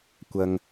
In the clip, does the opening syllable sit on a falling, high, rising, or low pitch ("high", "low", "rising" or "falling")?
low